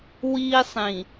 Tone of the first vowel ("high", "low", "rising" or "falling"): high